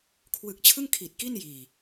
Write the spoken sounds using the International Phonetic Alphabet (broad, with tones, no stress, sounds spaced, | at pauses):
kʰ w ɯ˨˩ k̚ t͡ɕʰ ɯ˥˩ ŋ kʰ i˨˩ t̚ k i˥˩ n j iː˨˩